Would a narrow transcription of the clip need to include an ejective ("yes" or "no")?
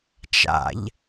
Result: no